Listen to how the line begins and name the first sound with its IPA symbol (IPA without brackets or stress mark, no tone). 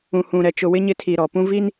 ũ